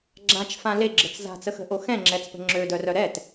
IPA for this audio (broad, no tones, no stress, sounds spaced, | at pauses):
ɡ͡ǁ ã t͡ʃ f ã l e ɡ͡ǁ ə t͡s z a̤ t͡s ə x ə̤ ʔ o x ɛ̃ ŋ͡ǁ ɛ t͡s p ə̤ ŋ͡ǁ ø d œ r œ ɾ ɛ t